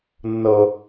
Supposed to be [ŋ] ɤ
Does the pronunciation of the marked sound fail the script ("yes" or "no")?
yes